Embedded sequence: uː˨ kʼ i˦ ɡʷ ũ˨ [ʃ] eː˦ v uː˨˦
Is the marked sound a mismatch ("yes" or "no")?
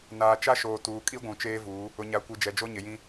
yes